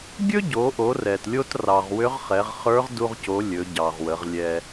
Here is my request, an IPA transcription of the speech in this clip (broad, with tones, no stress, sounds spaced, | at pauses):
ɡʲ ɵ˥ ɟ o˩˧ ʔ o˩˧ r ɛ˩ t lʲ o˧ t r ɑ˩ ʁ w ʏ˧˥ ʁ χ ɛ˩˧ ʁ χ ə˞˧˥ ʁ d u˧ ʁ c o˩˧ lʲ ɵ˩˧ ɟ ɑ˩ ʁ w ə˩˧ ʁ lʲ ɛ˧